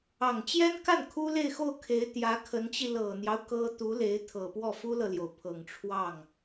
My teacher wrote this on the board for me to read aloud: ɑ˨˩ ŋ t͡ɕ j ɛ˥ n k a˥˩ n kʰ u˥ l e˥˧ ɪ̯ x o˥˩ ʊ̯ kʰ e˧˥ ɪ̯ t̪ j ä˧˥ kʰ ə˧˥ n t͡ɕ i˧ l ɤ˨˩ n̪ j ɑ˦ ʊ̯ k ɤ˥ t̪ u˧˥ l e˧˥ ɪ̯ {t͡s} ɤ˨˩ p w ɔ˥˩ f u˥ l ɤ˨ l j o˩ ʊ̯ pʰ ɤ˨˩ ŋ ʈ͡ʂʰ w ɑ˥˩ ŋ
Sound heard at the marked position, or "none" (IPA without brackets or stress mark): t̪ʰ